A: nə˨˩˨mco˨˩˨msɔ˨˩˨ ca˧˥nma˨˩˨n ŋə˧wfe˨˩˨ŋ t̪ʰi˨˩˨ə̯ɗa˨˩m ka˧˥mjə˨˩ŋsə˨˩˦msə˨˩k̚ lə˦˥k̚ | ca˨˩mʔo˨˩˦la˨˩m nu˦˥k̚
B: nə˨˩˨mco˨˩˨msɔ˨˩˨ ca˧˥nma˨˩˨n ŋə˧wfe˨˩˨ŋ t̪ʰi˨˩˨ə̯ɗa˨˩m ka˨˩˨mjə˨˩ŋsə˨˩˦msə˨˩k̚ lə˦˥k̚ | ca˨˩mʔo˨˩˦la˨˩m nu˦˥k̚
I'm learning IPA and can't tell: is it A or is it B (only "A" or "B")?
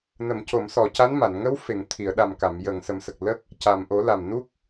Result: B